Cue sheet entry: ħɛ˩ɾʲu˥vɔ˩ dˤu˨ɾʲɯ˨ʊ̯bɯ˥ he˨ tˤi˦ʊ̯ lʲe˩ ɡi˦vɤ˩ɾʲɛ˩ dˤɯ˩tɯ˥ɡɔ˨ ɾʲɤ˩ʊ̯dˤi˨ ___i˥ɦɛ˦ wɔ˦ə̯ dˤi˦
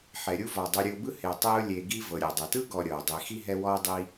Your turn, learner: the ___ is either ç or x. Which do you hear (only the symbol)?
x